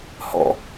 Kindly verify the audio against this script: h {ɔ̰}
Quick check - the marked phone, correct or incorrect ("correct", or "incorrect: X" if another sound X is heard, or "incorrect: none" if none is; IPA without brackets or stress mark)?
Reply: correct